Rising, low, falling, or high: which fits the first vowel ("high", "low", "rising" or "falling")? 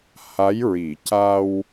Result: rising